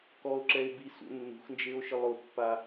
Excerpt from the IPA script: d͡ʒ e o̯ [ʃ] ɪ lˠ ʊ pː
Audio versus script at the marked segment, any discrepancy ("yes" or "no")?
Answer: no